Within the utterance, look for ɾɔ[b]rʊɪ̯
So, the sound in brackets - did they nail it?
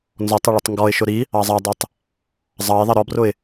yes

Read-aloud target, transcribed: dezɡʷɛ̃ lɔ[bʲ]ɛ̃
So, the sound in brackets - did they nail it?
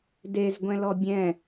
yes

